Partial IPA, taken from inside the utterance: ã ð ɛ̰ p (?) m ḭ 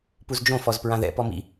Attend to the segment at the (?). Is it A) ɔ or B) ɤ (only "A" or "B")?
A